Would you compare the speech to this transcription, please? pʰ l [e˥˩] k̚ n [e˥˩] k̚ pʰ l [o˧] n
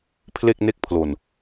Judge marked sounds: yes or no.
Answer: yes, yes, yes

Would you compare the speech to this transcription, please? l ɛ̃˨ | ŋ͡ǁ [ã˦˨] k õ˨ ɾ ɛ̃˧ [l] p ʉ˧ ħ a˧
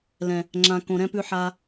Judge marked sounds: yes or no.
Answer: no, no

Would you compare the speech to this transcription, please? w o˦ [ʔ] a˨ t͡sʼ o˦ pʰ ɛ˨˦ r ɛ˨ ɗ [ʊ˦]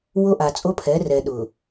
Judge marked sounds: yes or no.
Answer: yes, no

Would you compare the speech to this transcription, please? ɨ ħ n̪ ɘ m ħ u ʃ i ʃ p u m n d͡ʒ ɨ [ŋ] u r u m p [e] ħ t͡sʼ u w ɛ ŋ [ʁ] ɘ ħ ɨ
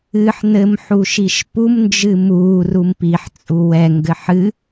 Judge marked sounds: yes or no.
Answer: no, no, no

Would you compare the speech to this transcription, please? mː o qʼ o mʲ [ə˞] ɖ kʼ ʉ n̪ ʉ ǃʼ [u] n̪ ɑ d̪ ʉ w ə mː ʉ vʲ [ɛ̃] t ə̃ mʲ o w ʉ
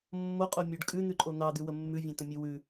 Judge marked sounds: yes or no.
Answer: yes, no, yes

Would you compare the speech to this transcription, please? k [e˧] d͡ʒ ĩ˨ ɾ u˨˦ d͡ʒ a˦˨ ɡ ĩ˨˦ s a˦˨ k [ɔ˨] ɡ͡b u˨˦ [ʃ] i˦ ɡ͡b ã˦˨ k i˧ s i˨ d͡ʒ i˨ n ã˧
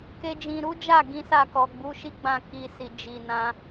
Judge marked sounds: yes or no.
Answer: yes, yes, yes

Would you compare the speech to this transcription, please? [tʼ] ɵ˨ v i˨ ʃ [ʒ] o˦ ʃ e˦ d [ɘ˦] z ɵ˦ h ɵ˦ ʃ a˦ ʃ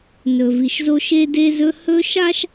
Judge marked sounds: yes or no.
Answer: no, no, no

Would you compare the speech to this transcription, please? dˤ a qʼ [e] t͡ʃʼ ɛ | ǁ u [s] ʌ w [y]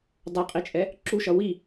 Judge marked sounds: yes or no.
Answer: no, no, no

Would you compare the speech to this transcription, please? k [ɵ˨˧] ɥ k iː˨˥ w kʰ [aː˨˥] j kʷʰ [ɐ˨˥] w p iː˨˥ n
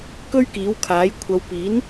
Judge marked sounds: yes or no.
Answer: no, yes, no

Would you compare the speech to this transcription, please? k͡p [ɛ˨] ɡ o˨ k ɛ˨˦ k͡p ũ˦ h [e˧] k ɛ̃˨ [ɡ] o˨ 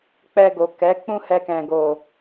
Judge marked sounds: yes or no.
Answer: no, no, yes

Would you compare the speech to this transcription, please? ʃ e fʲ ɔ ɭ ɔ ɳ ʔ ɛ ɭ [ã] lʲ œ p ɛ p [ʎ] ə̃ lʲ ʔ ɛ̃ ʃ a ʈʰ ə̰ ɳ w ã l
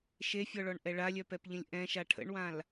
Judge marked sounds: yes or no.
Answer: no, yes

